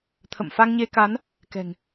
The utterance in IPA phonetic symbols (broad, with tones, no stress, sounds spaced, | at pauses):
t̪ʰ ə̰˧˨ m f a˧ ŋ ɲ e˧ k a˨˦ n | k ɛ̤˨˩ ŋ